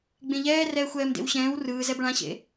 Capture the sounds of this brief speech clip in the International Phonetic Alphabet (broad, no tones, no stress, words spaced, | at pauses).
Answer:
ɡ͡bẽʎɛː rɛːxʷɛːmdḛwɕɛ̃ːw rɯːzɛb ɭãɕḛ